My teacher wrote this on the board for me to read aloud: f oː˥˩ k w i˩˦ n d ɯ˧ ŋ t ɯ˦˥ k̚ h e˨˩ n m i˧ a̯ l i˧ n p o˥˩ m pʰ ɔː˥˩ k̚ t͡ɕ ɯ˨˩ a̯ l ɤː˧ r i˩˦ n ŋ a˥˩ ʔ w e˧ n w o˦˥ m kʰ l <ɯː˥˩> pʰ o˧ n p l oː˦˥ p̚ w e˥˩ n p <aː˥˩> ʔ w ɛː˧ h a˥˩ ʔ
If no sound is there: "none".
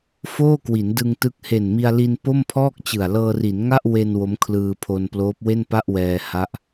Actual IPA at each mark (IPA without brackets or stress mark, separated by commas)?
ɯː˧, a˥˩